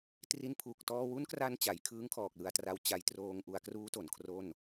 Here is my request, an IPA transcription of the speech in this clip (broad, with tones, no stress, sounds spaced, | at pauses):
t r i˧ n pʰ u˨˩ k̚ t ɔː˧ w u˦˥ n k r a˧ n t͡ɕ a˩˦ j kʰ ɯː˦˥ ŋ kʰ ɔː˨˩ k̚ l ɯ˧ a̯ t r a˧ w t͡ɕ a˧ j t r oː˧ ŋ ʔ u˧ a̯ k r uː˦˥ t o˩˦ n kʰ r o˥˩ n